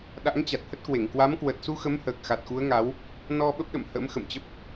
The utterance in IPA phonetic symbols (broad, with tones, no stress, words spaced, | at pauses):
ɗa̰˧˥ŋt͡ɕa˨˩t̚hə˦˥t̚kwe˧˩ŋ kwa˨˦mkwə˨˩t̚su˧xə˨˦m həː˨˩k̚xa˨˩t̚xu˨˦ə̯ŋa˨˦w | nɔ˧ ɓə˦˥p̚ɗə̰˧˨m hə̰˧˥mxə̰˧˨mt͡ɕə˦˥p̚